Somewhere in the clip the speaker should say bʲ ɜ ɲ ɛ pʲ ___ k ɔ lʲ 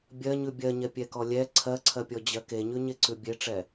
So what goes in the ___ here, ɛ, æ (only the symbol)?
ɛ